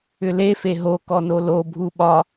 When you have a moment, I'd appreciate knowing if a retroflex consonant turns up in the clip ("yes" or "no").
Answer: no